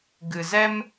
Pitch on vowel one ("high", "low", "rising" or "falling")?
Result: low